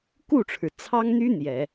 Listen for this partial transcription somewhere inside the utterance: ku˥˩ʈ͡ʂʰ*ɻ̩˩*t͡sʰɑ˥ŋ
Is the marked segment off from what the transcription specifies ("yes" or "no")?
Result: no